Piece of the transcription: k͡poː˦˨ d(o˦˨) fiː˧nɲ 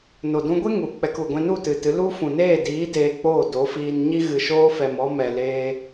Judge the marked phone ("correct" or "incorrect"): incorrect